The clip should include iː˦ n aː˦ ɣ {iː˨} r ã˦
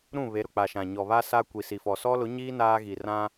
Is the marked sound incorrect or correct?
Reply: incorrect: i˨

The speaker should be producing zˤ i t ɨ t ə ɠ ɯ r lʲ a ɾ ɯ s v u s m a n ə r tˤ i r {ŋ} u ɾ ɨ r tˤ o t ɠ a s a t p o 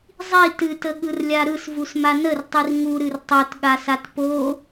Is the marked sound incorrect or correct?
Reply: correct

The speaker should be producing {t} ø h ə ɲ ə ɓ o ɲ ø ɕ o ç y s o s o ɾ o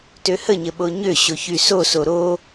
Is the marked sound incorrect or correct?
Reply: correct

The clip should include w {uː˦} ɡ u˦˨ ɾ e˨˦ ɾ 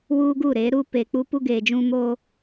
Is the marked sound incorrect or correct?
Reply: correct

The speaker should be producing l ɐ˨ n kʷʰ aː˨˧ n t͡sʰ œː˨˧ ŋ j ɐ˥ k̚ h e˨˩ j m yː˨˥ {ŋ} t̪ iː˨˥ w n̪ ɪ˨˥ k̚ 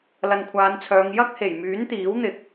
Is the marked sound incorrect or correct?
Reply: incorrect: n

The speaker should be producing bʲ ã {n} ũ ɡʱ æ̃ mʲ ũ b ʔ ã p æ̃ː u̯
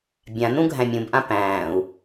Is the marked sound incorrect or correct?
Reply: correct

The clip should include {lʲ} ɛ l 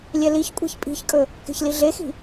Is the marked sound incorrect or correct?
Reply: correct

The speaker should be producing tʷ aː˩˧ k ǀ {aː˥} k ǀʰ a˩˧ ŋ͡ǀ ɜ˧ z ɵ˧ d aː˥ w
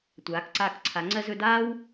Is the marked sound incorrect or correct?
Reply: incorrect: aː˧˩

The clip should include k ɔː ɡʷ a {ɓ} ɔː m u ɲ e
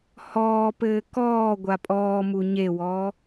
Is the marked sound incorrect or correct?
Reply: incorrect: pʼ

